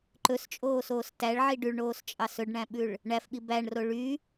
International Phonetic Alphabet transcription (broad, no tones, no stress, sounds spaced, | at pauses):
ǃ ɵ s t͡ʃʼ oː s oː s t æ ɭ ʕ i ɖ y ɭ ɳ oː s t͡ʃʼ ɑ s ɵ ɖ ɳ æ̃ ɓ ʉ ɭ | ɳ æ f ɓ i b æ ɳ r o ɭ y